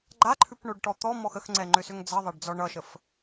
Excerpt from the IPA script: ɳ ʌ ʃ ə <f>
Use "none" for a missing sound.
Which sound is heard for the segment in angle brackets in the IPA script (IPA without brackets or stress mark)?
f